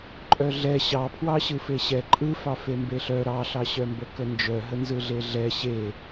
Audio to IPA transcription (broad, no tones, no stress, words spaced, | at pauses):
ǃʼœɮɛ ɕɑpʰwɑɕɯ feɕɛ ǃʼɯfɑ fembeɬœ ɾɑɬɑɕœmbə kənd͡ʒœɦənzɯ ɮeɮɛ ɕe